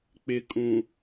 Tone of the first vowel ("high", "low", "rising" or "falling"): low